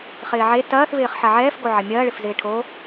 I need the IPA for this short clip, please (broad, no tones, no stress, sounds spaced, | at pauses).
χ ɪː ʕ e t ɐː θ v ɪː χ ħ ɐ ʕ ɛː f ɡ o ʕ ɐ mʲ ɐː ɭ ɪ f z ɪː ʈʰ o